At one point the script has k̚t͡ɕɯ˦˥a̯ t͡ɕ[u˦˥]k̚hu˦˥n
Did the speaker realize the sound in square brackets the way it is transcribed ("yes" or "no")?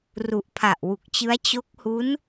no